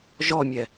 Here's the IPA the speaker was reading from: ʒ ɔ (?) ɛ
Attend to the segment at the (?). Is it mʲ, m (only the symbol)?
mʲ